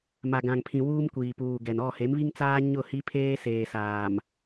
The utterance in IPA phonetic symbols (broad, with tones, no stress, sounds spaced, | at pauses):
m a˨ ɡ ã˨ ŋ pʰ ĩ˨ w uː˦ m kʷ iː˨ p uː˨ ɡ ɛ˨ n ɔ˦˨ h e˨˦ m β i˦ ŋ t͡s aː˦ ɲ ʊ˦˨ h i˦ pʰ eː˦ s eː˨ s aː˨ m